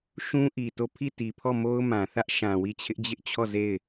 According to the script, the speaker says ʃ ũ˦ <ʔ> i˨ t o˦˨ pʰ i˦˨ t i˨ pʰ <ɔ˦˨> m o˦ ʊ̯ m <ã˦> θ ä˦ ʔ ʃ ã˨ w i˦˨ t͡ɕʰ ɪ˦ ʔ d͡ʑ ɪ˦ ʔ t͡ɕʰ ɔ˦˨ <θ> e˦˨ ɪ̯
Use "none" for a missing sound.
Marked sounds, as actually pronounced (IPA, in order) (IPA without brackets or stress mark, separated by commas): ʔ, ɔ˦˨, ã˨, z